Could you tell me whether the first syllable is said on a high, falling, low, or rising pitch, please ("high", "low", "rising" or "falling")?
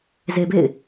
low